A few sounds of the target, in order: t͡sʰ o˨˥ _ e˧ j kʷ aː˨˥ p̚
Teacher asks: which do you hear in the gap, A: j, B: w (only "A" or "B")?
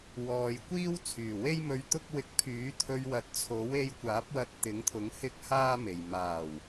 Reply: B